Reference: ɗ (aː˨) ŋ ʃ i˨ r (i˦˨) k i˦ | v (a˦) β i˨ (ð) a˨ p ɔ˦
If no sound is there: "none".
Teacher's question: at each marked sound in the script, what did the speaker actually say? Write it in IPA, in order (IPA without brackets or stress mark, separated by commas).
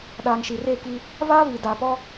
aː˨, e˦˨, a˦, d